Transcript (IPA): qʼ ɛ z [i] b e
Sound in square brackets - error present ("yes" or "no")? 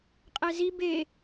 no